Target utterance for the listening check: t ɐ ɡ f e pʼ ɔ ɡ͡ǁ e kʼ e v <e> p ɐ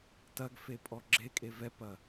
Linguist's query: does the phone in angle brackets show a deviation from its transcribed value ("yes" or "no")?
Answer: yes